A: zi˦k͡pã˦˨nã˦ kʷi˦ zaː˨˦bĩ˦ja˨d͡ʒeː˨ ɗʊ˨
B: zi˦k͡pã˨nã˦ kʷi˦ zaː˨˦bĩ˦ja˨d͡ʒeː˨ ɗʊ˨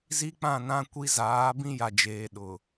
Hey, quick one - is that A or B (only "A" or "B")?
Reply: A